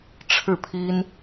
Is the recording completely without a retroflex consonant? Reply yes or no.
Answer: no